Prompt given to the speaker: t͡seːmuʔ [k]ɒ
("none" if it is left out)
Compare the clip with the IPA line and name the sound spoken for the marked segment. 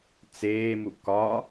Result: k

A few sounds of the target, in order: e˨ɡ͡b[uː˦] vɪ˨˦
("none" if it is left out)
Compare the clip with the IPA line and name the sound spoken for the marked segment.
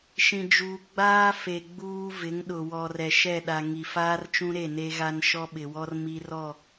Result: uː˦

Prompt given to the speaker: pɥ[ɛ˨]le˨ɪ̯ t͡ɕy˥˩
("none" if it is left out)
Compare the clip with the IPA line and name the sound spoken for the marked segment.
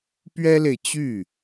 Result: ɛ˥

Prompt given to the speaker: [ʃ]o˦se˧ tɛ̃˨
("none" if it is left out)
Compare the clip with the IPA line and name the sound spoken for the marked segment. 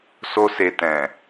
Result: s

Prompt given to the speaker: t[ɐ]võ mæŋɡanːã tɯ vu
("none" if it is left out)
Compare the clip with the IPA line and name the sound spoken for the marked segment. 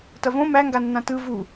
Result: ɐ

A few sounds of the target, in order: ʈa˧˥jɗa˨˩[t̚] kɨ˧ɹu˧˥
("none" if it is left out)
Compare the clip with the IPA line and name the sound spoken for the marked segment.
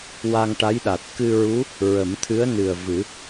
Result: t̚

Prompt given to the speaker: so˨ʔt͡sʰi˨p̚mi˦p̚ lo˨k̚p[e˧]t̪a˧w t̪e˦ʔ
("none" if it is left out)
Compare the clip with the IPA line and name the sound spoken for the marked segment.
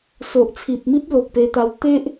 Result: e˧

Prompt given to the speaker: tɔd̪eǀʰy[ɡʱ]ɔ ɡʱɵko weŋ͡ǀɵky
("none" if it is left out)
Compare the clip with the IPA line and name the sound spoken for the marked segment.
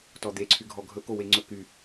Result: ɡʱ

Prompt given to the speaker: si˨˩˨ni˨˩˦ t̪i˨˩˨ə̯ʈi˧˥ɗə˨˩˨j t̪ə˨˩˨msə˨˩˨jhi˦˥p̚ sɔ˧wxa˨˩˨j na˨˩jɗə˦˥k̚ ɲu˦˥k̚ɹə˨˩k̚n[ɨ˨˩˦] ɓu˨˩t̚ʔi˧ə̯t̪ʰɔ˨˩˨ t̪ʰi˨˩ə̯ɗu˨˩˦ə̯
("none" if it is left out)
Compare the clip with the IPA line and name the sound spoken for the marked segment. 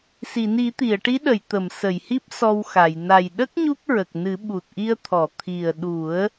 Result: ɨ˨˩˦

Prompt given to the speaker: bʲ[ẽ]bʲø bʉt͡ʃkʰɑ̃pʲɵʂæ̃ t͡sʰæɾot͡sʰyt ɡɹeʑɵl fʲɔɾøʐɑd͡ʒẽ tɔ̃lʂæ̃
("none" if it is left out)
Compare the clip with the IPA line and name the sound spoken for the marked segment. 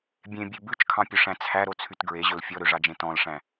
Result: ẽ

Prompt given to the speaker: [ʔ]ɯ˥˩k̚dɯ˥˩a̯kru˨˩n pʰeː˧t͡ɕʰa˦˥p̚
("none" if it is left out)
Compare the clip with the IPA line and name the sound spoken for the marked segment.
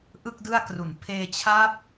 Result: ʔ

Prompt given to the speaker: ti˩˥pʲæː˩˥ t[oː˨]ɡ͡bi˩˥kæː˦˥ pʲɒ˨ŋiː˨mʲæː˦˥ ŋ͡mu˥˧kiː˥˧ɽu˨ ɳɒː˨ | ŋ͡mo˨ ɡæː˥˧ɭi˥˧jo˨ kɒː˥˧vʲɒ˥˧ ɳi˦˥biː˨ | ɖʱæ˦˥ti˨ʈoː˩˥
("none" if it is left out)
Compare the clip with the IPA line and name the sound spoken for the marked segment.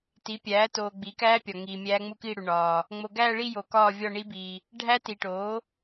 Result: oː˨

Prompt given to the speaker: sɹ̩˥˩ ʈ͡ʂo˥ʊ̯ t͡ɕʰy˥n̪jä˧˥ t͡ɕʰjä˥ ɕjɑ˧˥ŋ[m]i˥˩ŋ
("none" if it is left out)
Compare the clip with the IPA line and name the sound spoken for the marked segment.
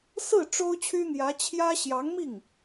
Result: m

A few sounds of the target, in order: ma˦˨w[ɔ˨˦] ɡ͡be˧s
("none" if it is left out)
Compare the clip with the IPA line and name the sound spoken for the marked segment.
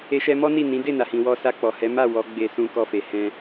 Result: ɔ˨˦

